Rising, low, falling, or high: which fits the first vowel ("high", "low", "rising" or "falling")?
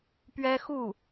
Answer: high